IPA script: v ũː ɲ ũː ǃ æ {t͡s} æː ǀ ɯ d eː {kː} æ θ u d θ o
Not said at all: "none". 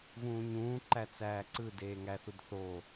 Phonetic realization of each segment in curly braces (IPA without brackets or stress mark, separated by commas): t͡s, ŋ